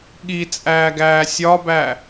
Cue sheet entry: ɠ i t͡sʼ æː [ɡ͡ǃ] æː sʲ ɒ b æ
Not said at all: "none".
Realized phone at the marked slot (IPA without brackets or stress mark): ɡ